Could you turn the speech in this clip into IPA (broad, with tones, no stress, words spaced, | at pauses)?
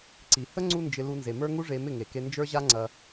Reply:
ǀi˨ hə˦ ŋ͡ǀu˦nd͡ʒɪ˧ lu˧nze˨mə˞˦ ŋu˦ʐe˧ mɪ˦˨ŋe˨ke˧ nd͡ʒə˞˦ʑa˦ŋ͡ǀɐ˧